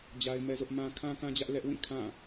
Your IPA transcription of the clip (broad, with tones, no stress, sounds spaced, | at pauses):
d͡ʑ a˦ ɪ̯ m ɛ˦ z ʊ˦ ʔ m ã˦ kʰ ã˦ k ã˦ d͡ʑ ä˦ ʔ l ɛ˦ ʔ w ĩ˦˨ kʰ ã˦˨